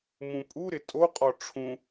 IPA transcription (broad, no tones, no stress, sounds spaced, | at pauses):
m ũ pʼ u ɾ ɪ tʼ o qʼ ɔ ʈ͡ʂʰ ũ